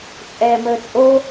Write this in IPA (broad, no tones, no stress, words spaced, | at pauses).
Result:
t͡sʼɛːməːt͡sʼo